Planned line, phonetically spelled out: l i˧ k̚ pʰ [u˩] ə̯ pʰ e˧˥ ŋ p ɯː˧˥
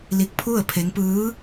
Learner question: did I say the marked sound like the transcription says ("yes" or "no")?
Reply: no